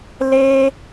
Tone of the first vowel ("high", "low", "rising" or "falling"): high